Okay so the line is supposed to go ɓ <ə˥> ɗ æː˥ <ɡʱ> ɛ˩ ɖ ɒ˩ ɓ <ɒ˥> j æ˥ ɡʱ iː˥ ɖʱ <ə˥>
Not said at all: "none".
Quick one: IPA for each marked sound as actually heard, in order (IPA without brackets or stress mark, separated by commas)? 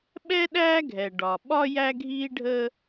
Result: ɛ˥, ɡʱ, ɒ˥, ə˥